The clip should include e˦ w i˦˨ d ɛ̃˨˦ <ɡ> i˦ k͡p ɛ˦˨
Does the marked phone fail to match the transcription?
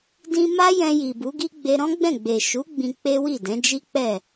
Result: yes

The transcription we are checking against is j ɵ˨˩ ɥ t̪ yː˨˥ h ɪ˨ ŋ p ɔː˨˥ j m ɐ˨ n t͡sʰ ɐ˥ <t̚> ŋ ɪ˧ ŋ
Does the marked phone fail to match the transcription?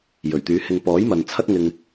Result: no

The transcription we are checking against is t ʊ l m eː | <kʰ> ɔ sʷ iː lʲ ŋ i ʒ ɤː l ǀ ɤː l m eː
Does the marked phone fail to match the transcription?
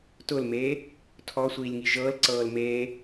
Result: yes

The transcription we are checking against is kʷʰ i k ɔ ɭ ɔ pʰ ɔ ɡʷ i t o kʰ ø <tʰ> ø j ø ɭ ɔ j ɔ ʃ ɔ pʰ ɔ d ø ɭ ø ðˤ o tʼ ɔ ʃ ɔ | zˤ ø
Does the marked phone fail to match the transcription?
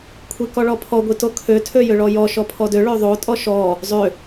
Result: no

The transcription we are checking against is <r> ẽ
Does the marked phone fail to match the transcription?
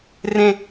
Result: no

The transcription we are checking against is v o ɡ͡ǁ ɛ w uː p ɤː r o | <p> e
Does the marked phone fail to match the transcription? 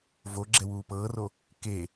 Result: yes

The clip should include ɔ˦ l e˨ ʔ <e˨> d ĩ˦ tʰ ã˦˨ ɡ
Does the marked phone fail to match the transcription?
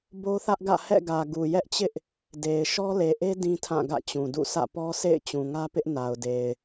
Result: yes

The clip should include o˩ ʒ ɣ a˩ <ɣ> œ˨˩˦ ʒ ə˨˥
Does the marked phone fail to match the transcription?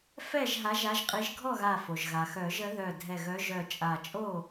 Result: yes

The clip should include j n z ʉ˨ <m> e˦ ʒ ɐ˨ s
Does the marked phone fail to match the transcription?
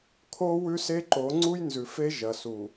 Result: yes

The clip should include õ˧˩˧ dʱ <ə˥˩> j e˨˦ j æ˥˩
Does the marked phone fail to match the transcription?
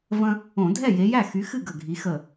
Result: yes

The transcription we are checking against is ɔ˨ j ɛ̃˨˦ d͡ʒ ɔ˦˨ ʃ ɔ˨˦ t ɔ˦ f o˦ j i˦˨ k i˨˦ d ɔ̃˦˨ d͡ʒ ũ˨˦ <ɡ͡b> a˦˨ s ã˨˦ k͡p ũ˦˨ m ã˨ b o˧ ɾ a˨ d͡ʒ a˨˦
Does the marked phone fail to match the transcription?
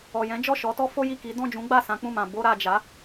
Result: no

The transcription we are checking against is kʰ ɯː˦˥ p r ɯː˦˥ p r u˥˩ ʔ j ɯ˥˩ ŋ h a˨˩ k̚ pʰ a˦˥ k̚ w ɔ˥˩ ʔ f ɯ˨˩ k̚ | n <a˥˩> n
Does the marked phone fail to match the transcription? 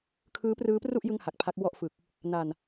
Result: yes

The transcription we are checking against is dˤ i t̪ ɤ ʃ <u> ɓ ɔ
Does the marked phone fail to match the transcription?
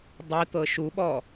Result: no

